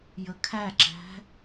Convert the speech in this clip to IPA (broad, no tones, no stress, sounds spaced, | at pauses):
j ə kʰ æ ǁ æ̤